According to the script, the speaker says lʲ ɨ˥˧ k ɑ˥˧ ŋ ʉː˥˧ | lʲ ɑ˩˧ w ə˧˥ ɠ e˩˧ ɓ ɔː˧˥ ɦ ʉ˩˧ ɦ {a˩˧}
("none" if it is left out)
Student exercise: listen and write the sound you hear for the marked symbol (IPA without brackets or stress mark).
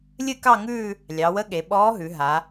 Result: a˩˧